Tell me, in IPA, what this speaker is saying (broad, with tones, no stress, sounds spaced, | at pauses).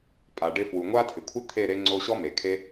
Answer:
pʼ a˨ ɖ ɪ˧ f w u˨ ŋʷ a˦ tʰ ɪ˨ kʷʰ ɪ˦ t̪ʰ e˦˨ ɾ e˦ ŋ͡ǀ o˦ ɕ ɔ˦ m e˨ kʰ e˦